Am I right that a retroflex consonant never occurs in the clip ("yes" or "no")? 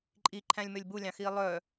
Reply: yes